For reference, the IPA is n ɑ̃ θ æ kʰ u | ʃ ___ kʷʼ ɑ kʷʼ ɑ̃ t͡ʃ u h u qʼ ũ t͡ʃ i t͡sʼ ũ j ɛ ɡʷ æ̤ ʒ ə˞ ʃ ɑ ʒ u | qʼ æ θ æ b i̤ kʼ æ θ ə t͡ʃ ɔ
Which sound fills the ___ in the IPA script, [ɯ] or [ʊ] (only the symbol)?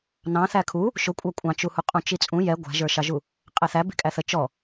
ʊ